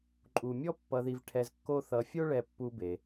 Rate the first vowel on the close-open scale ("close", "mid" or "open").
close